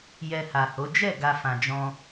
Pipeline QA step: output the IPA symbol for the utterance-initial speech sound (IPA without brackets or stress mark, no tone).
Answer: j